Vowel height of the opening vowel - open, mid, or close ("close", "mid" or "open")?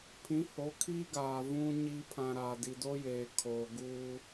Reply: close